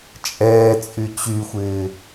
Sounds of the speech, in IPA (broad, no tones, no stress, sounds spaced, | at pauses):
t͡ʃʼ ɛː t͡sʼ y t͡ɕ y xʷ ɪː